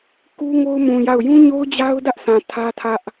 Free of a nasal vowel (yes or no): no